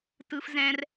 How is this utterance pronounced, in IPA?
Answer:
tɯ˦fzɛ̃˦r

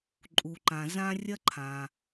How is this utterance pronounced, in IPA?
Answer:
ǃʼu˩ǃã˩ zã˥ rʲɐ˥ ǃʰã˩

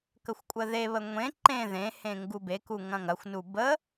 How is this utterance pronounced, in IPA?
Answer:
kəxʷkʷʼəðeβə ŋʷẽ ǃẽ ðẽhẽ ŋɡubeku ŋɐ̃ŋɐxʷnu bə

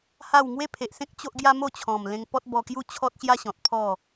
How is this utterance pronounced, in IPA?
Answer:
ha˥˧w ŋwe˦pʰe˨ʔsẽ˦k̚ t͡ɕo˦ʔɡja˦ mo˥˧t͡ɕʰɔ̃˨˩mlẽ˧ŋ pɔ˦t̚bɔ˧ kju˦t͡ɕʰɔ˦t̚ɕja˦ɕɔ̃˨t̚ pʰɔ˥˧

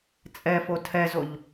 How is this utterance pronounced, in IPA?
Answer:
t͡sʼɛfo tʰɛzoʎ

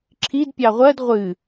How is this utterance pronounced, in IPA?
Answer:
ǁʰid pʲɑʁʷɜd ʁʷɨ

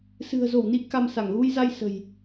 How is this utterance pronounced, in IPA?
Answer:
sɨ̤˨˩ə̯zo˧˩wni˨˦ ka˧msa˧˩ŋ ɣu˧jza˧j sə̤˨˩j

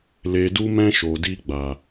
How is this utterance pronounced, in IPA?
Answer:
le˨du˧mɛ̃˧ ʃo˨di˧ɡ͡ba˨

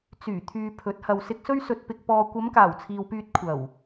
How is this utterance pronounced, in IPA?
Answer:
t͡syː˨˩t̪ʰyː˨ pʰɵ˨˥t̚hɐ˨w sɪ˨k̚sɵ˧ɥ sɵ˨t̚pɪ˨k̚ pɔː˨ kʷɐ˨˧mkaː˨˩w t͡sʰiː˨wpyː˧t̚ kʷʰɐ˨˩w

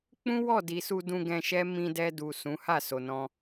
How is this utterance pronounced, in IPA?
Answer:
k͡pũ˦wɔ˦˨di˨ su˧dũ˧ ɡɛ̃˧ ʃɛ˦ mĩ˧dɛ˧du˨ sũ˨˦ ha˦˨ so˨nɔ̃˧

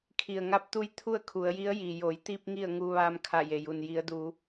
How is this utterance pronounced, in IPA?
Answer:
kʰi˩ə̯ŋa˧˥p̚t̪u˧˥j t̪ʰu˥˨ə̯kʰu˩˧ə̯ji˧˥ə̯ ji˩jo˩˧jt̪i˧p̚ ŋi˥˨ə̯ŋu˧ ʋaː˧mkʰa˧˩je˩ju˩n ji˩˧ə̯du˩˧

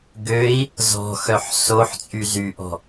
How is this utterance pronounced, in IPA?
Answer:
ɡøi̯ | zɔ̤xœħ soħt͡sʼy zyʔɔ̤

